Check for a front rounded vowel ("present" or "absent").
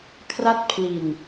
absent